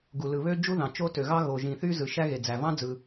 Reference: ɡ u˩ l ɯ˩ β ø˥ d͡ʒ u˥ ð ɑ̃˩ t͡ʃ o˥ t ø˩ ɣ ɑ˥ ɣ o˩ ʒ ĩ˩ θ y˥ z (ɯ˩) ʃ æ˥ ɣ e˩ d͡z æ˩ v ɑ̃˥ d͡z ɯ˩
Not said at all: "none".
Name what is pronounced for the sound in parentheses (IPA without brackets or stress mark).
ɯ˩